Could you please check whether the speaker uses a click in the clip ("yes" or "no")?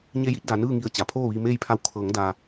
no